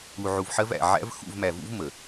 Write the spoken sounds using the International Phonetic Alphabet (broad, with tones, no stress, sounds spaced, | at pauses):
u˨ ʕ u˨ v ħ ɜ˦ v æ̰˨ ʕ æ̰˦ v x ṵ˦˨ v m æ˨ v ṵ˦ v m ə˨